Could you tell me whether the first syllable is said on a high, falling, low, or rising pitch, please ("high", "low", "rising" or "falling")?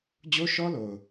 high